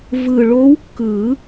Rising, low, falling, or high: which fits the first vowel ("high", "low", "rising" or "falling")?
low